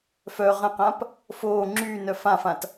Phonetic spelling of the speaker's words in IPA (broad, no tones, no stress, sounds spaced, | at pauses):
f œ ʁ ə̃ q ã p | f oː ŋ͡ǁ yː n œ f ã f ã t